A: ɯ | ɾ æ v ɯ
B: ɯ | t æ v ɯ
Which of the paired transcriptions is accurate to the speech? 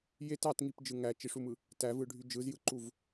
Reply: B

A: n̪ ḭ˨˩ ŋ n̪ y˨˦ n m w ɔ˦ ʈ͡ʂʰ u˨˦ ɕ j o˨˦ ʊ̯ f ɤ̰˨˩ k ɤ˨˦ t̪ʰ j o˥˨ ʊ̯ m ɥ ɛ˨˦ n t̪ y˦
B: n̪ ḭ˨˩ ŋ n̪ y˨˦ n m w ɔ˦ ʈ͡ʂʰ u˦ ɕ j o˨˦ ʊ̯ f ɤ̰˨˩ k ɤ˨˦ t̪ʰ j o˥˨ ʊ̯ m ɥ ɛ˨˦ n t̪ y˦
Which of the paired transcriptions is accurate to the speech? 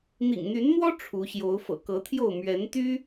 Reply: A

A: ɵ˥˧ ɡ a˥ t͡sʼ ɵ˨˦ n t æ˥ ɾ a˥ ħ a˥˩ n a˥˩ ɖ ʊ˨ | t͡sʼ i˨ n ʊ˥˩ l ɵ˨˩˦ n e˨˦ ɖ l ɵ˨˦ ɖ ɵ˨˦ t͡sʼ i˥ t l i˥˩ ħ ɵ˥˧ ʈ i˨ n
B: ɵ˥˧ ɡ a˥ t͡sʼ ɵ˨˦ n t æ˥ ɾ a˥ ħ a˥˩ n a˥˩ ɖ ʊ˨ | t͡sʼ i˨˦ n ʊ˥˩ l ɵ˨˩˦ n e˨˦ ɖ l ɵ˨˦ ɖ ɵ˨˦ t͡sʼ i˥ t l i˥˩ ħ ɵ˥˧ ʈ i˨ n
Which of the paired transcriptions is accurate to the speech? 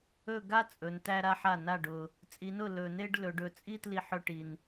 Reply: B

